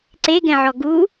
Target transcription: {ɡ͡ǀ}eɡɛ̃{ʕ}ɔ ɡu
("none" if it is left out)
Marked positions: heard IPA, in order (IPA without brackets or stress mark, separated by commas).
ǀ, ʕ